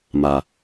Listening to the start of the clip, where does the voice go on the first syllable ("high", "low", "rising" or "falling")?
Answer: low